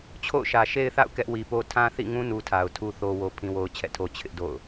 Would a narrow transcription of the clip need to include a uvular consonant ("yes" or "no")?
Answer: no